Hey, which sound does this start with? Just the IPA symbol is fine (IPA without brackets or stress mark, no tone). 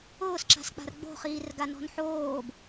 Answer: ʊː